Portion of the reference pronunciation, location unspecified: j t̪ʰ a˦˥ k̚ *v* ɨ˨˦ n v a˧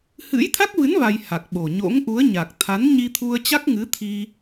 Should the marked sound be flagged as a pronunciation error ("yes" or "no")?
no